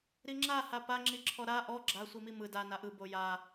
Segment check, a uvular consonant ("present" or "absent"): absent